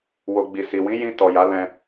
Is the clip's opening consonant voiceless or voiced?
voiced